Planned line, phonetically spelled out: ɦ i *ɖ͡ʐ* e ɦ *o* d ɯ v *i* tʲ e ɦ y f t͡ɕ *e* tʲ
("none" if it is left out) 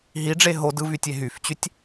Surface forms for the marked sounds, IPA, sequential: ɖ͡ʐ, o, y, y

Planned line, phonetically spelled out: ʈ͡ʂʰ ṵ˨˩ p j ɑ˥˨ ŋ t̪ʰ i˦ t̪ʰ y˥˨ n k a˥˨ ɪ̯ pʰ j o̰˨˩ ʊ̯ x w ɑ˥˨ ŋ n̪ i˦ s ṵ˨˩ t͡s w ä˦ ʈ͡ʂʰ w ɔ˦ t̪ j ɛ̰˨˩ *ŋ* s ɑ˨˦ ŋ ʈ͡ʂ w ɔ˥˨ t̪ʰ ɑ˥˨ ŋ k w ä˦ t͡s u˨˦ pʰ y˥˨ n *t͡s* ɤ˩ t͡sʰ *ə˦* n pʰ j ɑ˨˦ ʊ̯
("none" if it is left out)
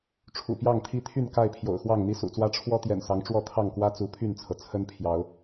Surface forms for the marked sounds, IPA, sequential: n, t͡sʰ, ə˦

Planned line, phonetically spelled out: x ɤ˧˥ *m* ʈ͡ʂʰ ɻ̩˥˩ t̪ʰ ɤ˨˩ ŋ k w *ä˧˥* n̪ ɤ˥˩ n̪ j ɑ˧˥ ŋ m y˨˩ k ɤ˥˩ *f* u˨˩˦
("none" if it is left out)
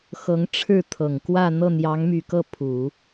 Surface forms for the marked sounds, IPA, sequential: ŋ, ä˥˧, pʰ

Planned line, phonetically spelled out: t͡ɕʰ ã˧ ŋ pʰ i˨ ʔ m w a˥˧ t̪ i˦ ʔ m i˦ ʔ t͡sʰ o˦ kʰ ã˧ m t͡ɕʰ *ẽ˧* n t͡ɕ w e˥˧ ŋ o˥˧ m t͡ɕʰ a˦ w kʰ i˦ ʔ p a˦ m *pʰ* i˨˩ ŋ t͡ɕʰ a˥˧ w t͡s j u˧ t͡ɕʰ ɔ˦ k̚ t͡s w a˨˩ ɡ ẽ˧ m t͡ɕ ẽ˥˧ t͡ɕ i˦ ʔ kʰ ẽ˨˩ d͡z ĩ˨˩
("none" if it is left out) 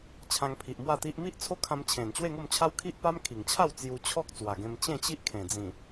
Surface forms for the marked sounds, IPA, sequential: ẽ˨˩, kʰ

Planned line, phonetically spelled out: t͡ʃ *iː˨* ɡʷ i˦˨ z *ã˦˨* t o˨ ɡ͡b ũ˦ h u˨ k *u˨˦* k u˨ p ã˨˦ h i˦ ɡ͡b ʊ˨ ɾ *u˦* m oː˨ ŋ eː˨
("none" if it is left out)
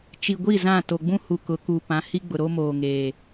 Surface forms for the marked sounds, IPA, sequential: i˨, ã˦˨, ʊ˨˦, o˦

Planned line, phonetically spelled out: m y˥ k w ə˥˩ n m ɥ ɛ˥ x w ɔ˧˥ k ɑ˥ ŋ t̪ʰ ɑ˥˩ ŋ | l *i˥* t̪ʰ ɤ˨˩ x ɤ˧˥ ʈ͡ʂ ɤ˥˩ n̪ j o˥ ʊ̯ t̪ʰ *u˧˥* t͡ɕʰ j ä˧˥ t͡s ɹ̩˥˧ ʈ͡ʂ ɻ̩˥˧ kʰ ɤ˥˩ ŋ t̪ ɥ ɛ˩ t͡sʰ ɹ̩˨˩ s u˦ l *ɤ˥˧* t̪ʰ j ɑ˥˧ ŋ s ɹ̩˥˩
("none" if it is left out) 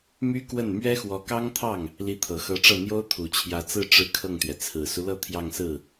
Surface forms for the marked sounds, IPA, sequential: i˧˥, u˨˩, ɤ˥˧

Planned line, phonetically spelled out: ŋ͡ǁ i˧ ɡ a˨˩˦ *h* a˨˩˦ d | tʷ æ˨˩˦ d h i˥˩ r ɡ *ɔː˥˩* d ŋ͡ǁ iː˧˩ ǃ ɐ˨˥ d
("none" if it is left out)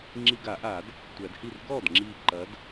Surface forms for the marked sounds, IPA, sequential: ʔ, ɔː˥˩

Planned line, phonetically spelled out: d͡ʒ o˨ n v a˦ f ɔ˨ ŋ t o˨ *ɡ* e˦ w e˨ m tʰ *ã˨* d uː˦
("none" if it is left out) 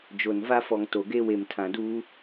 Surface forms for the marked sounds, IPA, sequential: ɡ, ã˨

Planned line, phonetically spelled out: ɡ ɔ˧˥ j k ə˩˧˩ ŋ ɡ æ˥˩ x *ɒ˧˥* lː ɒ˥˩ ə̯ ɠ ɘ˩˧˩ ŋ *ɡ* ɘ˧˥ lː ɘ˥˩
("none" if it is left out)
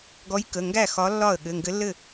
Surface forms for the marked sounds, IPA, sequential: ɒ˧˥, ɡ

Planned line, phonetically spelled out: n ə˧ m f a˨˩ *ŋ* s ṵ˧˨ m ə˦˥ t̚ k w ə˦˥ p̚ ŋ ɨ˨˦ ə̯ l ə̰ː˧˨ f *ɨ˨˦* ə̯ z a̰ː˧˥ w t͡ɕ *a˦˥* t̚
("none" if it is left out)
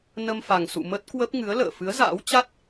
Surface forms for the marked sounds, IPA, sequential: ŋ, ɨ˨˦, a˦˥

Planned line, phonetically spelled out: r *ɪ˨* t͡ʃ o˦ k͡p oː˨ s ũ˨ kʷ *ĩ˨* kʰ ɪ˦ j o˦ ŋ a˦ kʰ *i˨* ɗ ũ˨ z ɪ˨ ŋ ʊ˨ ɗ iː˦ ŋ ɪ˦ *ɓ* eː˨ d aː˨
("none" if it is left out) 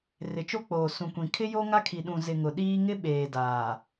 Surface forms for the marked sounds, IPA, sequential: ɪ˨, ĩ˨, i˨, ɓ

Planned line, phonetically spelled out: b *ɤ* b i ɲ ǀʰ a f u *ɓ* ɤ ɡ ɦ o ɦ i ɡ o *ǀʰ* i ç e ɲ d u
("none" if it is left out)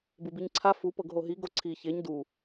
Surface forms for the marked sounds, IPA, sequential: ɯ, p, ǀʰ

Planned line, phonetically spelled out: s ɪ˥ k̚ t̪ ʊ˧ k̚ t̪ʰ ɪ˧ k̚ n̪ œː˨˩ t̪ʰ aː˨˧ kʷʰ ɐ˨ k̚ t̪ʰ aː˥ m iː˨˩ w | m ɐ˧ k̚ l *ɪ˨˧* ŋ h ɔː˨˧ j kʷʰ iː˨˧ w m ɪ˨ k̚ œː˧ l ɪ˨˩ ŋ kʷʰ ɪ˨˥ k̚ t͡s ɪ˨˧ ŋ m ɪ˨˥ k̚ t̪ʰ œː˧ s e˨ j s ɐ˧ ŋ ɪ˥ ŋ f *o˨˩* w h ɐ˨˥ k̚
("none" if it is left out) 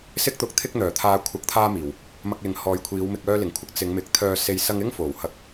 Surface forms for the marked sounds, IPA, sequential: ɪ˨˧, o˨˩

